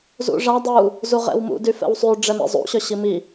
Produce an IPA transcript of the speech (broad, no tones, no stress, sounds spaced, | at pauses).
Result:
z ṵ ʐ a dˤ u | z u ʁ ɛ̰ w m ṵ d y f ɛ̰ w sˤ y ɖ͡ʐ ɛ m ḛ zˤ ṵ ɕ œ ɕ i m i